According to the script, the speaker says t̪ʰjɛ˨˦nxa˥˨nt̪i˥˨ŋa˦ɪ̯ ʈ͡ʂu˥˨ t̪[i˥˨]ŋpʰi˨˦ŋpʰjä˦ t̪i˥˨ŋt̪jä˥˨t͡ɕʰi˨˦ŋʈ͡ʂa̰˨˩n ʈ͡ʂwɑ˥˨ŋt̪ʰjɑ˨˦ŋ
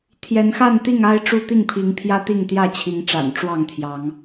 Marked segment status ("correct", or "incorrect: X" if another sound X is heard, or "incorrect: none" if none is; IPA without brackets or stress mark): correct